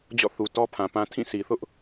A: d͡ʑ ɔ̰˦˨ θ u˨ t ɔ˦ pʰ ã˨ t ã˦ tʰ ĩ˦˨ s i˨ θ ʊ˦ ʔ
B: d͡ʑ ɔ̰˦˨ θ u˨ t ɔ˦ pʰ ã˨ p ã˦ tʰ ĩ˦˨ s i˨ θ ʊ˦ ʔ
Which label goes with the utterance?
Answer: B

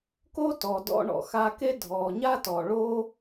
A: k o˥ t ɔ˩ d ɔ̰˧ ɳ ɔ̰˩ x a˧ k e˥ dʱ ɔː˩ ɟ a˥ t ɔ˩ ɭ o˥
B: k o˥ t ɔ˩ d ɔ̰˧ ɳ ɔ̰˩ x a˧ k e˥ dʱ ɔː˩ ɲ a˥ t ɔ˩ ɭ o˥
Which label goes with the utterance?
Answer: B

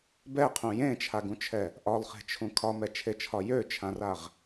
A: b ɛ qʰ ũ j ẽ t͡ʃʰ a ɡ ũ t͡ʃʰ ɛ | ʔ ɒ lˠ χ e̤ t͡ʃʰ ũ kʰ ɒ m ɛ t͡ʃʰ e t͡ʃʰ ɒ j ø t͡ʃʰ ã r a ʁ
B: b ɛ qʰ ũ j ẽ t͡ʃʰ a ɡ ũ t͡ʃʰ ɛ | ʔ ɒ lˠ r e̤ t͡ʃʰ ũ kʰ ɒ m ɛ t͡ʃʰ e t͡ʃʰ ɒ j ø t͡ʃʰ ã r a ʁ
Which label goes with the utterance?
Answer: A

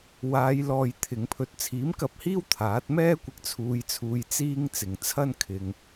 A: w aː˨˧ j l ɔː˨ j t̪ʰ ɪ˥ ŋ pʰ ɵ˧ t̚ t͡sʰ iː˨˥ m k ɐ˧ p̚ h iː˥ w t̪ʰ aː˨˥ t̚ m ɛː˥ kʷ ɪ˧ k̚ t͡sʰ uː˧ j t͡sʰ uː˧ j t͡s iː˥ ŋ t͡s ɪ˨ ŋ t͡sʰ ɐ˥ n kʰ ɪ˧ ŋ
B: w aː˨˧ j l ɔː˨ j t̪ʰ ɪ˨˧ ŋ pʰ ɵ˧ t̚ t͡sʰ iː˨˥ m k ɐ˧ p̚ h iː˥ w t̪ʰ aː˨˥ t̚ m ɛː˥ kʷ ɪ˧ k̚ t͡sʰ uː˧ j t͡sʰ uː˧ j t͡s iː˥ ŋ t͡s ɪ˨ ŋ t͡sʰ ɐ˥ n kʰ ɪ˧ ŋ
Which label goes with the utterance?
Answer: B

